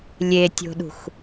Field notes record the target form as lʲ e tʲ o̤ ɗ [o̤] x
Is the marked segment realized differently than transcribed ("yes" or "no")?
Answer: yes